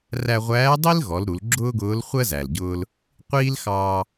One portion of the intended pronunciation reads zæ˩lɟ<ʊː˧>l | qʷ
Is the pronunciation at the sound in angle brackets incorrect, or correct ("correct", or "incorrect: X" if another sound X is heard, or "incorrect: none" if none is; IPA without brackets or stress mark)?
correct